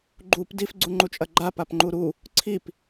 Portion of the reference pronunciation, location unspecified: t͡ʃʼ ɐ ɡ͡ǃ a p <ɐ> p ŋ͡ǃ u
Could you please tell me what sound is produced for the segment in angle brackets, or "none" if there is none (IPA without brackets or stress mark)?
a